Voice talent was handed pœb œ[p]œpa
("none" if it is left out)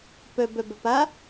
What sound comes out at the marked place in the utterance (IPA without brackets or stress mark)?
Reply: b